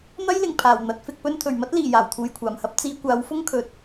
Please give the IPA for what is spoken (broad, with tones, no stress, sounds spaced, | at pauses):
n̪ ɐ˥ j l ɪ˨˩ ŋ pʰ aː˨˩ w n̪ ɐ˨˥ t̚ f ɪ˧ k̚ p ɵ˥ n t̪ʰ ɵ˨˩ ɥ m ɐ˥ t̚ l iː˨˩ j aː˨˩ w t̪ʰ uː˨ j kʷʰ aː˨˩ m h ɐ˥ p̚ t͡s iː˨˧ kʷ aː˨˥ w f ʊ˥ ŋ kʰ ɵ˨ t̚